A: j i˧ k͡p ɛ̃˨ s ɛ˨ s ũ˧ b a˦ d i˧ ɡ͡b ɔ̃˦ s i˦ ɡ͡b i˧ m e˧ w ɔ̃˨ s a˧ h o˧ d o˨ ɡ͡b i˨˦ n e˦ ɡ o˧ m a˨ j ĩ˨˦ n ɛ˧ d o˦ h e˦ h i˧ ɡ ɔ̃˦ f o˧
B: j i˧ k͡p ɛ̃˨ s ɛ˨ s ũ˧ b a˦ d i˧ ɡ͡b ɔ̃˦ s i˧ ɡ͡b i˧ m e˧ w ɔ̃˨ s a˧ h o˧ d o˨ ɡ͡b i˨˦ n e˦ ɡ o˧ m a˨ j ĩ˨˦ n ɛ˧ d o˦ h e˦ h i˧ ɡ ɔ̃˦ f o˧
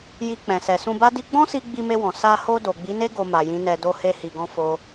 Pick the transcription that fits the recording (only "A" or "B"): B